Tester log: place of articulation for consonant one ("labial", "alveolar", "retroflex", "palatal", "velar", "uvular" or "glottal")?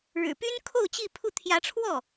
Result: retroflex